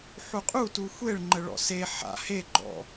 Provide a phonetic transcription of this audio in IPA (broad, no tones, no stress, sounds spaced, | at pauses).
ħ u qʼ u t u xʷ e ɭ ŋ͡ǃ ə ɭ ɔ̰ s e ħ a̰ h e ɡ͡ǃ ɔ̰